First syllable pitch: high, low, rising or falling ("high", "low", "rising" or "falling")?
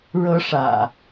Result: high